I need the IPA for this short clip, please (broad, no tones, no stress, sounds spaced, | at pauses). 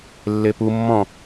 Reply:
lː e p u mː ɔ̃